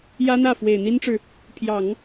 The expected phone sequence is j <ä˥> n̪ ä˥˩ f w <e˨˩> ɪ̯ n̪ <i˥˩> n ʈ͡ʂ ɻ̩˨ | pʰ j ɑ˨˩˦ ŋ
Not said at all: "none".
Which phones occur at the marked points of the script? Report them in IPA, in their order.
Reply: ä˥, e˨˩, i˥

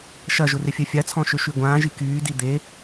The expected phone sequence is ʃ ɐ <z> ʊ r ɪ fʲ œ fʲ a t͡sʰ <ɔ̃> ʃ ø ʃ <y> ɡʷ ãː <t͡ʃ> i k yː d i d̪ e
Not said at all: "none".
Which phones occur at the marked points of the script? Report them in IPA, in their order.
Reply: ʒ, ɔ̃, y, ʒ

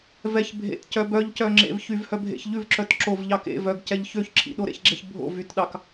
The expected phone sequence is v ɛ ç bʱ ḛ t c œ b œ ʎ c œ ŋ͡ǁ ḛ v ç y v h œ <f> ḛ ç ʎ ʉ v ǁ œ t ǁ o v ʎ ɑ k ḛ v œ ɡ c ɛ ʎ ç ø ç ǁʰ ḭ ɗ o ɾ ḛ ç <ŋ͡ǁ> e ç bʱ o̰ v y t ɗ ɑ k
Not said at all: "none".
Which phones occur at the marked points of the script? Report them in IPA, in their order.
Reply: bʱ, ɡ͡ǁ

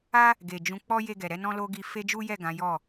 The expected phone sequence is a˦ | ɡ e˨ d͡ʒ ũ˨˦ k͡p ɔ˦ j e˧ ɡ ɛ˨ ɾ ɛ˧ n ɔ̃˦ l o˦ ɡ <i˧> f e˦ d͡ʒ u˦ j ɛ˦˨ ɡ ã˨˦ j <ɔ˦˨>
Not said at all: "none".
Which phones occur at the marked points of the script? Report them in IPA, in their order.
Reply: i˧, ɔ˦˨

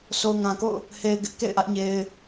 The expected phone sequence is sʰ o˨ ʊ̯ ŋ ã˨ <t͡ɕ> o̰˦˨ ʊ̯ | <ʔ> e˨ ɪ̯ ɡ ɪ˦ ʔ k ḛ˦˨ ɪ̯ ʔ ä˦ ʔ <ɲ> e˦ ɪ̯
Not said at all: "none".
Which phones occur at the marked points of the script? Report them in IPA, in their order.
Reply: k, h, ɲ

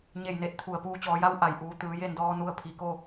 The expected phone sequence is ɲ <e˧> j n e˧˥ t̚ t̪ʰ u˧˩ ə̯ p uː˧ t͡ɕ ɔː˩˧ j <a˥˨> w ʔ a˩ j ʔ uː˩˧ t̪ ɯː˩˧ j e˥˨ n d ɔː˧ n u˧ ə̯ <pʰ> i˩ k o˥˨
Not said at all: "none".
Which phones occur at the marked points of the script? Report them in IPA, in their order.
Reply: e˥˨, a˧˥, pʰ

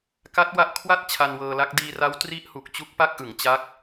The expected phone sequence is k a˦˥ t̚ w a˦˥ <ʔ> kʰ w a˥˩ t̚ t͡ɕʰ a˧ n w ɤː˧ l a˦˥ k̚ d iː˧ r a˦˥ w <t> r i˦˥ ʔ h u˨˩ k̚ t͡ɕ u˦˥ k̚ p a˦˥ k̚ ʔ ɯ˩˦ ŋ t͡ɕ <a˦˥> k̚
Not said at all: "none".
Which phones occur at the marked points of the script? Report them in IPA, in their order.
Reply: ʔ, t, a˦˥

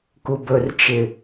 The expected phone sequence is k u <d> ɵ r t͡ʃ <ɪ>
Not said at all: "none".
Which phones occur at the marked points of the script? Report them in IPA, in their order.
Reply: b, ɪ

